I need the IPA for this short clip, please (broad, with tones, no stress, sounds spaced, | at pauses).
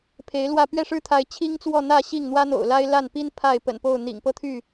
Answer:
pʰ e˨˦ ɪ̯ l w ä˥˨ p ɥ ɛ˥˨ ʂ ɻ̩˦ t̪ʰ a˨˦ ɪ̯ t͡ɕʰ i˦ ŋ t͡s w ɔ˥˨ n̪ ä˥˨ ɕ i˥˨ ŋ n̪ w ä˦ n̪ o̰˨˩ ʊ̯ l a˦ ɪ̯ l a˥˨ n p i˦ n pʰ a˥˨ ɪ̯ p ə̰˨˩ n p o˥˨ ʊ̯ n̪ ḭ˨˩ ŋ p ɤ˥˨ t̪ʰ y˥˨